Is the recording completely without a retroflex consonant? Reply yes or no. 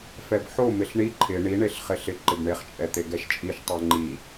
no